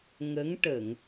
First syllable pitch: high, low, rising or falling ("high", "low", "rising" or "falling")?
rising